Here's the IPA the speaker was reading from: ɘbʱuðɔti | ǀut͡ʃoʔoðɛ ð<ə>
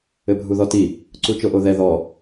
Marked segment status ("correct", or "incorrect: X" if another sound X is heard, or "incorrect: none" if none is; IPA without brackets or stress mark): incorrect: ɔ